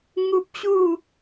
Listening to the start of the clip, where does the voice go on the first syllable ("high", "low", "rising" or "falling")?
high